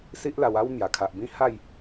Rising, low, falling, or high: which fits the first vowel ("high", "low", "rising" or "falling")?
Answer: high